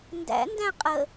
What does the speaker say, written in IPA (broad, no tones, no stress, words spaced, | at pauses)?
ndæ̰ndæ̃ qʼə